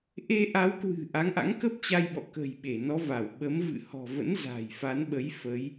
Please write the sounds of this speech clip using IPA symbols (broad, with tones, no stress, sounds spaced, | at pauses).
ʔ e˧ ʔ a˨˦ w k w ɨ̤˨˩ ʔ a˨˦ ŋ ʔ a̰˧˥ ŋ k ə˦˥ p̚ t͡ɕ a˧ j ɓ ɔ̰˧˨ k ə̤˨˩ j ɓ e˧˩ n ɔ˨˦ v a˧˩ w ɓ ə˨˦ m v ɨ̰˧˨ h ɔ̤˨˩ v ə̰˧˥ n z a̤˨˩ j f a˨˦ n ɓ ə˨˦ j f ə˨˦ j